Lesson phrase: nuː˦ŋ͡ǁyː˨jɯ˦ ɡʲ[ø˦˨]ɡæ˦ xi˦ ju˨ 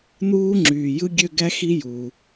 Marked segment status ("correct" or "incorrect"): correct